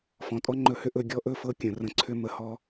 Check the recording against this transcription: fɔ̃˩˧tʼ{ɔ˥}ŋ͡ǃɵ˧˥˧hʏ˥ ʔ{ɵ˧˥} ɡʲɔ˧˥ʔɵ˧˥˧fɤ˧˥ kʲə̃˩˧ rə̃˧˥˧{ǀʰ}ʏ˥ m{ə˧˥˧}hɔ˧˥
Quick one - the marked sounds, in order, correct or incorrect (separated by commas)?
correct, correct, correct, incorrect